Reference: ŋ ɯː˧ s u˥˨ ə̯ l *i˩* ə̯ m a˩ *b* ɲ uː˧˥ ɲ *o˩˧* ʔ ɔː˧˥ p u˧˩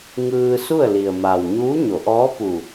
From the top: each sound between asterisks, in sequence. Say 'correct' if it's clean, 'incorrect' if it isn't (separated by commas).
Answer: correct, incorrect, correct